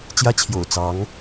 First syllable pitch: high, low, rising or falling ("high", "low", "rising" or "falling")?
high